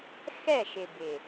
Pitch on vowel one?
falling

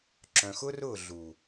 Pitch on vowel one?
low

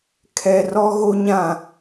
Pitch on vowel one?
low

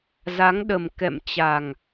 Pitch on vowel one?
rising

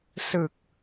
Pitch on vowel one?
low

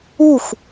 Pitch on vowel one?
falling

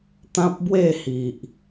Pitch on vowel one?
high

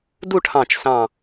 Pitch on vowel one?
falling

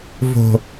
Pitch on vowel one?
low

